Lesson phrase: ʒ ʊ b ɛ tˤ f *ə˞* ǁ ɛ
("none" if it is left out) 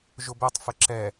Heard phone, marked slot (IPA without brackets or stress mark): ə